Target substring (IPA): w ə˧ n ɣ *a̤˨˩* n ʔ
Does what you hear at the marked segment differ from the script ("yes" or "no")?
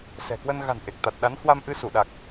no